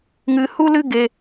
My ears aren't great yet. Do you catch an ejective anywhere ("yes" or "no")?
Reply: no